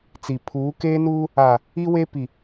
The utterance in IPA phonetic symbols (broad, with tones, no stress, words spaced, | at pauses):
t͡si˨ pʰuː˨˦ keː˦nuː˦ | a˨ | i˦we˦ pi˨